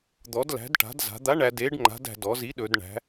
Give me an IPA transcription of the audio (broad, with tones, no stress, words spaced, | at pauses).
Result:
d̪ɔ˩˧dlæ̤˩˧dʈa̤˩˧d za̤˩˧d̪a˨˥ ɳæ˩˧d e˨˥ɖŋ͡ǃa̤˨˥dæ̤˩˧ dɔ˩˧zi˨˥ɗɵ˩˧d ɳæ̤˩˧